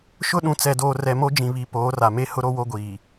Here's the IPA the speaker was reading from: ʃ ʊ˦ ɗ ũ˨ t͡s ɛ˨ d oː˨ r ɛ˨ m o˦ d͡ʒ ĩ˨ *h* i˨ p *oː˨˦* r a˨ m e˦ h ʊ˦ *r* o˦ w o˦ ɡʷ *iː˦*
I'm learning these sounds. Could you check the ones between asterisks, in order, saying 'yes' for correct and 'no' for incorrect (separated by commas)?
no, yes, no, no